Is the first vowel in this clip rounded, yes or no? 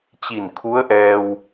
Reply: no